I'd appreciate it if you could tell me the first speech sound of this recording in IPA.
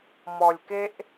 m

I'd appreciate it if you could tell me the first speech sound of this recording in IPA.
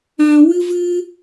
ã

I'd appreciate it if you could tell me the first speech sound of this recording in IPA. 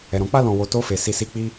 ɛ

